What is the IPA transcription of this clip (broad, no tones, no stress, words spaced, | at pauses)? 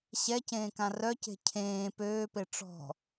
ɕɛcẽːkã rœce̤ cʰẽː pøːpe ʈ͡ʂɔ̤